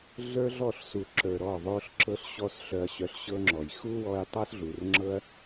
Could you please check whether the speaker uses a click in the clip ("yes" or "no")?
yes